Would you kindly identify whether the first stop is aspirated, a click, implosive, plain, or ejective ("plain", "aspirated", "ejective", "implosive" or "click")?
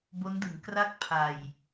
plain